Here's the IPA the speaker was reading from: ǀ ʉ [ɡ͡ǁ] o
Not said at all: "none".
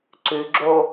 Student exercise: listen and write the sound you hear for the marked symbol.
ɡ͡ǁ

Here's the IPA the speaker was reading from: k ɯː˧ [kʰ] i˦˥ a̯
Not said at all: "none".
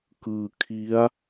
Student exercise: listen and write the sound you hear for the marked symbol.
kʰ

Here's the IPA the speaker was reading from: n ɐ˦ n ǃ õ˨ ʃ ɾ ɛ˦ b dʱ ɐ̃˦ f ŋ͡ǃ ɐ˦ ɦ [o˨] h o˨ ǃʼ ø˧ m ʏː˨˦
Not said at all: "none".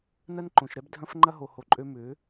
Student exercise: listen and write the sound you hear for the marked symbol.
o˨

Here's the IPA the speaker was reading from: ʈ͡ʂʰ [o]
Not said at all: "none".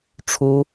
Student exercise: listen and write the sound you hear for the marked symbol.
u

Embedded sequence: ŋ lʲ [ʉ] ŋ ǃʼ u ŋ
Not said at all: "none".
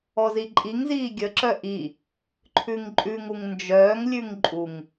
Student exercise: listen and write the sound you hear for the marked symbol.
ʉ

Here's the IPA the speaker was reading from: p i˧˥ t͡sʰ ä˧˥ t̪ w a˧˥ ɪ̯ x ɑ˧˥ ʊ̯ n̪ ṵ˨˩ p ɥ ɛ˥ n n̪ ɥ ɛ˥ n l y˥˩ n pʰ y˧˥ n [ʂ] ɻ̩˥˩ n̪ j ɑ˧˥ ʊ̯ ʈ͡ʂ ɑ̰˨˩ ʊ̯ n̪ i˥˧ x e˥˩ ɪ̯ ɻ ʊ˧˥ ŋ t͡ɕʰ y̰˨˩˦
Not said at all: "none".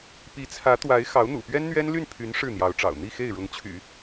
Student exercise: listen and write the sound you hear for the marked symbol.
ʂ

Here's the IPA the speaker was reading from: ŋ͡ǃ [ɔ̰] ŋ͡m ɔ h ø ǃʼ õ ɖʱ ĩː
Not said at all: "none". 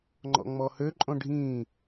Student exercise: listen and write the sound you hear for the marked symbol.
ɔ̰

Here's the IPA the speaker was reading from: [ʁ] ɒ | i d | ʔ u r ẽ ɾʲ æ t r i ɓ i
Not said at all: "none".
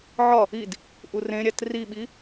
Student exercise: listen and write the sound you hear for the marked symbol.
ʕ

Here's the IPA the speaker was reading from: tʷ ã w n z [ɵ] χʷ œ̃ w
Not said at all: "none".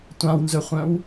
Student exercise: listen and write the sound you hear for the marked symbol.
ɵ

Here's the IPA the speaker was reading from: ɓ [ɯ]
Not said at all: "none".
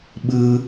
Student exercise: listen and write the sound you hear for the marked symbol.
ɯ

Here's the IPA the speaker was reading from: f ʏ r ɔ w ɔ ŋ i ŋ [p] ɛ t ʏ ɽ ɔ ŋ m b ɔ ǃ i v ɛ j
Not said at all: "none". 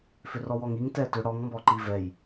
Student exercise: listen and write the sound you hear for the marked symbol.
t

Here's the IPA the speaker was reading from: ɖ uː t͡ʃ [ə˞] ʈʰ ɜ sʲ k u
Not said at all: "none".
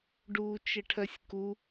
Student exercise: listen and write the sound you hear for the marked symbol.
ə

